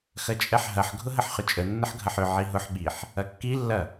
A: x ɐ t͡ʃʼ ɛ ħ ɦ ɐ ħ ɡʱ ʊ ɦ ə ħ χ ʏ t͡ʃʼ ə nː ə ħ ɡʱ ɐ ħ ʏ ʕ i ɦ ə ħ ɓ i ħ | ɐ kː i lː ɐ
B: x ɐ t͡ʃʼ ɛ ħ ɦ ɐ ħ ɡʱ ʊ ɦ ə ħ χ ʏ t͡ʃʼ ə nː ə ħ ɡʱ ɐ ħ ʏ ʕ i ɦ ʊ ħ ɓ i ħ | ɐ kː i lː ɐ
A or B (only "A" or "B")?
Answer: B